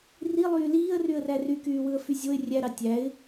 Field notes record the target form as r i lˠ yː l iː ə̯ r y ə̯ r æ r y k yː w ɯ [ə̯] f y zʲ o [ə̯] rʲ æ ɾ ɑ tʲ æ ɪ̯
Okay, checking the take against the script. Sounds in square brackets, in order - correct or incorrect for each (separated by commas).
correct, incorrect